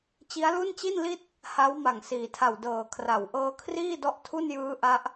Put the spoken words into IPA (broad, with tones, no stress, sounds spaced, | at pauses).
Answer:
t͡ɕ i˦˥ a̯ l u˥˩ n t͡ɕ i˥˩ n l i˥˩ t̚ | h a˦˥ w m a˨˩ ŋ s iː˩˦ tʰ a˨˩ w d ɤː˨˩ kʰ r a˨˩ w ʔ ɤː˦˥ kʰ r iː˥˩ d ɔ˦˥ ʔ tʰ u˥˩ n j ɯː˦˥ ʔ a˦˥ ʔ